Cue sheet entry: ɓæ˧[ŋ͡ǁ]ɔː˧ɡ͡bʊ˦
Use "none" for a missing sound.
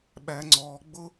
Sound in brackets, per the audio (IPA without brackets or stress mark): ŋ͡ǀ